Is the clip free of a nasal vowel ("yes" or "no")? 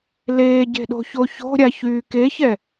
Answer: yes